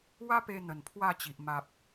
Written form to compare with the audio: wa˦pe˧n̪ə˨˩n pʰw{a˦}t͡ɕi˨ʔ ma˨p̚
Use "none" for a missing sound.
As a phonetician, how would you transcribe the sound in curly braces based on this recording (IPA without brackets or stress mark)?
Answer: a˥˧